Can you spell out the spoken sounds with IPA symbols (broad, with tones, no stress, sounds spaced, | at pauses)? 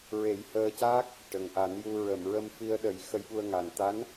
ɹ e˨˩˦ j h əː˧ c aː˦˥ k̚ | ʈ ə˨˩ ŋ ʔ a˨˩˦ n j u˧ ɹ ə˨˩˨ m ɹ ə˧ m f i˧ ə̯ ɗ ə˨˩˦ j x ə˧ j ɓ u˧ ə̯ ŋ a˨˩ n t̪ a˧˥ n